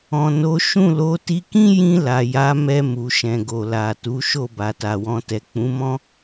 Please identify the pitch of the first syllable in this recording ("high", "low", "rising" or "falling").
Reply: low